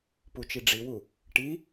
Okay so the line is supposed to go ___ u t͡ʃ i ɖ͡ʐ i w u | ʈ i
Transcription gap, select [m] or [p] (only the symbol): p